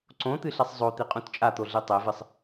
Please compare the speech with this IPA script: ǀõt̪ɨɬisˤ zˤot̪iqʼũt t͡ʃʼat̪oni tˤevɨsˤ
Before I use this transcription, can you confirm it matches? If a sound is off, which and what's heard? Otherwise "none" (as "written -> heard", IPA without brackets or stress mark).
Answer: n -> ɮ